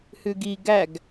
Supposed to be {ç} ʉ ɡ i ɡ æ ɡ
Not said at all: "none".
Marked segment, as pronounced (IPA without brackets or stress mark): h